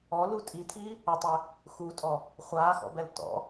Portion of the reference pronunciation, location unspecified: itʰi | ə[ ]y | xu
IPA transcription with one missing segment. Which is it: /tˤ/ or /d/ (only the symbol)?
tˤ